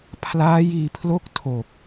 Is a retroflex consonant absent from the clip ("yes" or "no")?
yes